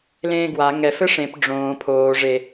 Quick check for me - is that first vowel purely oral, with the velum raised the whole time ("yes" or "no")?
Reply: no